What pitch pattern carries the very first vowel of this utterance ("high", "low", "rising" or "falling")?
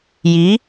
rising